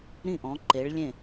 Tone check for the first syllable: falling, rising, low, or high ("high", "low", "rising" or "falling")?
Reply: falling